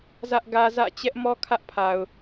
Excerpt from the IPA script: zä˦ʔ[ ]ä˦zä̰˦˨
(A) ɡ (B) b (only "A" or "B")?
A